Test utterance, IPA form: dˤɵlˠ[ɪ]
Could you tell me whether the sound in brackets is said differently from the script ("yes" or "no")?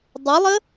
yes